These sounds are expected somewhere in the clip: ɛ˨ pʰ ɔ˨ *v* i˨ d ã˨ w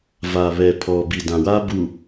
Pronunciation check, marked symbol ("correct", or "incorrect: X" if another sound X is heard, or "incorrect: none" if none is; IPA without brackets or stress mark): incorrect: b